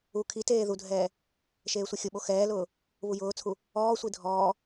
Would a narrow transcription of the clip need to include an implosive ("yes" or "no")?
yes